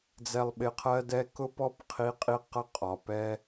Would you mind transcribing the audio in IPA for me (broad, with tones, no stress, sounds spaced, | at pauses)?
d͡z ɛ˨ lˠ ɓ ɪ˨ qʰ ɜ˧ d ɛ˧ k ʊ˧ p ɔ˧ p qʰ i˨˦ qʼ i˧ q ʌ˦˨ qʼ ɒ˨ p ɛ˦